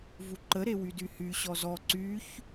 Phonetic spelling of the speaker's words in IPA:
v u ǃ ə ɾ e w y d y h y ɕ ɔ z ɔ ǀ y ç

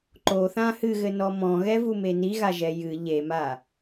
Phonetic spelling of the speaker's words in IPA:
ǃ o θ ã h ɨ ɣ ɘ n ɔ m ɔ̃ ɣ ɛ v u m e n i ɣ a ʒ ɛ j ɨ ʎ e m a

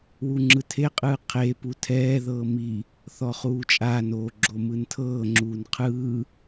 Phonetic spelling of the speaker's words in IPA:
w u ŋ͡ǁ ɯ tʰ e qʼ ɯː qʰ e p u tʰ ɛː ð ɤː m i | θ ɔ χ uː t͡ʃʼ aː n oː ɡ͡ǁ o m ɯ n tʰ ɤː ŋ͡ǁ uː n qʰ ɯː

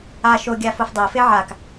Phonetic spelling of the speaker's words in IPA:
a ʃ o ɡʲ a f o f dˤ o f e ʕ a k

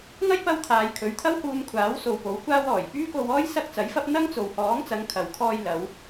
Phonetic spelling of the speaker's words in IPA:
ŋ ɐ˥ j p ɐ˧ w t̪ʰ aː˨ j kʰ ɵ˨˧ ɥ t̪ʰ ɐ˥ w h uː˧ m kʷʰ aː˨˥ w s o˨ w p o˨˥ w kʷ aː˥ w ɔː˨˩ j p yː˥ k o˧ w ɔː˥ j s ɐ˥ k̚ t͡s ɐ˨˥ j f ɐ˥ p̚ n̪ ɐ˥ ŋ t͡s o˨ w h ɔː˨˥ ŋ t͡s ɐ˨˧ ŋ kʰ ɐ˨ w kʰ ɔː˧ j l ɐ˨˧ w

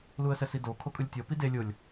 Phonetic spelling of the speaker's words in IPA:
l u ə̯ s ɛ s i d o kʰ o kʼ ɯ lʲ tʲ ɔ p i d e lʲ o lʲ

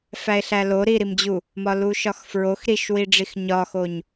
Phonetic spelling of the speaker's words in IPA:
f æ e̯ ɬ æ l o ɾ i ɾ i m d͡ʑ u | m ɒ l u ʃ ɒ x f ɹ o x ɾ i ʃ w i ɖ͡ʐ i x ɲ ɒ x o ɲ

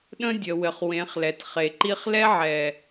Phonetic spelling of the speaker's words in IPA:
ɗ ə̃˦ dʲ ə˨ w ɘ˨ χ w ẽ˨˦ χ l ɛ˨ t χ e˨ ǃ i˦ χ l ɛ˦ ʕ ɛ˨

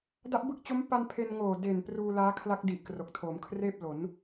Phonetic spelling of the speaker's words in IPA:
d a˦˥ ʔ b ɯ˦˥ k̚ t͡ɕ o˦˥ m p a˧ n pʰ e˧ n ŋ oː˨˩ d e˨˩ n p r uː˧ l aː˦˥ kʰ l a˦˥ k̚ d i˨˩ ʔ k r o˨˩ k̚ tʰ oː˩˦ m kʰ r eː˥˩ p̚ l o˩˦ n

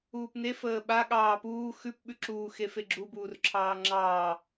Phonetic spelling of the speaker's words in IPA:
uː p n e f əː ɓ a ɠ ɑː p uː x ʉ p ɓ ʉ ǁ uː x e f e ɡ͡ǁ u b uː r ǁʰ ɑː ŋ͡ǁ ɑː

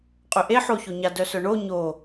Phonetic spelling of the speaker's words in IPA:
qʼ ø ʔ e ħ o ç o ɲ a d œ s œ ɳ o ɲ o

